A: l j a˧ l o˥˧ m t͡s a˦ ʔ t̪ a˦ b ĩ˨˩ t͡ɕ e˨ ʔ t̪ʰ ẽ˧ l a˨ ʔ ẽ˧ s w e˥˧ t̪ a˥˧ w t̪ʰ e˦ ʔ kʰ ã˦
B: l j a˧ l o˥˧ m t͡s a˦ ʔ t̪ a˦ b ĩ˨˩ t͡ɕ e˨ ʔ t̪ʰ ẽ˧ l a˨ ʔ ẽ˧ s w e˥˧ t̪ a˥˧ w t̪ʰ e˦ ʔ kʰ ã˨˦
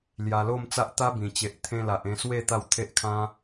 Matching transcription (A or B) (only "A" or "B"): A